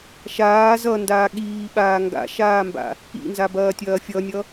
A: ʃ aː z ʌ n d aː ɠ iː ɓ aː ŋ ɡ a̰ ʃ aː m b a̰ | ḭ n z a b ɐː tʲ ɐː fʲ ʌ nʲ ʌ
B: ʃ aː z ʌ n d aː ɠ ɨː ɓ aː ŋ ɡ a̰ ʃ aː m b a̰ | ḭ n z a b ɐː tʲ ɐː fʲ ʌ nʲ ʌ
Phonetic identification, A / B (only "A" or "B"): A